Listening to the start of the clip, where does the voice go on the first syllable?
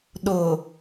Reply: low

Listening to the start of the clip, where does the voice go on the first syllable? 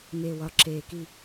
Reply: low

